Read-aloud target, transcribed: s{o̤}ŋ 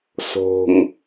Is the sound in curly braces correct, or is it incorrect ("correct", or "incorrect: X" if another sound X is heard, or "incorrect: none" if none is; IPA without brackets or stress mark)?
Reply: correct